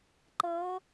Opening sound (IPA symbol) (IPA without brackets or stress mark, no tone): ǃ